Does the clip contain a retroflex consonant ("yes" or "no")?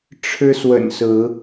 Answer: yes